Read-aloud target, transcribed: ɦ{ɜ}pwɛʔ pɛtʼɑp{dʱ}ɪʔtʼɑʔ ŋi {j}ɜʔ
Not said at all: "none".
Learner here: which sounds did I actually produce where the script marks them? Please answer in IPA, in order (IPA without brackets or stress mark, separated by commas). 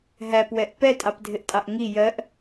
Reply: æ, dʱ, j